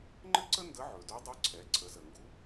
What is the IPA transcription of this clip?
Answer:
ŋ͡ǃ ɘ˥ ǀ ə˥ n d ə˧˥ ʕ ɵ˩ d ɵ˧˥ dˤ ɵ˧˥ ǀʰ ɛ˩˧ ǀʰ ə˩˧ z ə˩ ŋ ɡ u˧˥

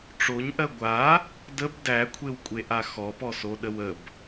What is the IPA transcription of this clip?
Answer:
ʈ͡ʂ o ɲ ʔ ɜ ɡʷ a | d ə b d æ kʷʰ e w kʷʼ e ʔ a x ɔ p ɔ s o ɗ ə w ə b

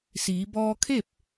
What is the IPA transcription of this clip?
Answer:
s iː˩˧ b ɔː˧ kʰ e˥˨ p̚

